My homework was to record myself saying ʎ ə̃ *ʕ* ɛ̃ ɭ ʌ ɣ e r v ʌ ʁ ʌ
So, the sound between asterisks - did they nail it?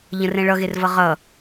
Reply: no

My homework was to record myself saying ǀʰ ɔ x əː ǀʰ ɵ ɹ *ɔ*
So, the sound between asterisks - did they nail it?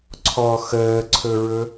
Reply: no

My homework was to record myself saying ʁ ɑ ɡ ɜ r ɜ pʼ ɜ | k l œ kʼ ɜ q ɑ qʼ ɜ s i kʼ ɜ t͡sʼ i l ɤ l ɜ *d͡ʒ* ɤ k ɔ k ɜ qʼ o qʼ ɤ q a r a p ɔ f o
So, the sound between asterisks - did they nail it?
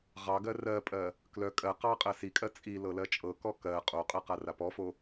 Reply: no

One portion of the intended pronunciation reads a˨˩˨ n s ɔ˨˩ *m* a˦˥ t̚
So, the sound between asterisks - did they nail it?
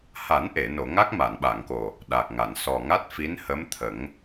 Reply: no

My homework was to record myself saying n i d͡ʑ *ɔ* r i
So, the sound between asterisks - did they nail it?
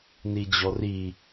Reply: yes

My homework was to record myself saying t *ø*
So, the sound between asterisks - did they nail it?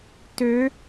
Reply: yes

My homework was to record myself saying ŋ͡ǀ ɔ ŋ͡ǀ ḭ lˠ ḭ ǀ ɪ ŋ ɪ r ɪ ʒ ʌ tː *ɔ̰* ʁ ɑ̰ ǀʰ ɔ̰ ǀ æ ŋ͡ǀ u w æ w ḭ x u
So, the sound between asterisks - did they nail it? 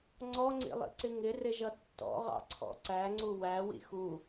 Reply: yes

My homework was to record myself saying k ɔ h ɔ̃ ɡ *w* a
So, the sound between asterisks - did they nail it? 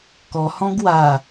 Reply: yes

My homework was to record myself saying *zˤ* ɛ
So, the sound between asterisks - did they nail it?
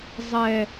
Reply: yes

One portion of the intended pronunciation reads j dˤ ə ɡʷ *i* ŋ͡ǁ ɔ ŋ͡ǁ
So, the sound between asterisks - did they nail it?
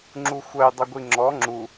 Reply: yes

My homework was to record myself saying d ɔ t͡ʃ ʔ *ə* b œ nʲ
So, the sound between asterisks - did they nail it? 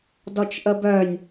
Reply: yes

